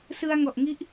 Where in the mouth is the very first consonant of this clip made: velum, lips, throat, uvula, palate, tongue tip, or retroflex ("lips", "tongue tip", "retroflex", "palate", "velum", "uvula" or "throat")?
tongue tip